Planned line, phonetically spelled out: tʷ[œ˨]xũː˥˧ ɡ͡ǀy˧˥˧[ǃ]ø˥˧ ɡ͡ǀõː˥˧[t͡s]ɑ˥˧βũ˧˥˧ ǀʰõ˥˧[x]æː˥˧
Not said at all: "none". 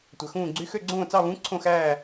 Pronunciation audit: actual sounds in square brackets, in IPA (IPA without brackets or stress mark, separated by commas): œ˨, x, t͡s, x